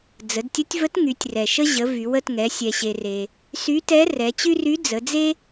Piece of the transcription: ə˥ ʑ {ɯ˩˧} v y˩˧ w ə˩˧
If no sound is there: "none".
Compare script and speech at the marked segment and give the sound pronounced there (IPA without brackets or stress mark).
ə˩˧